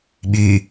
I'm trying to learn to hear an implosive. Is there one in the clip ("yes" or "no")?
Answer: yes